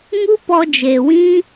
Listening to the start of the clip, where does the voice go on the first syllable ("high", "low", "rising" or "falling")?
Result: high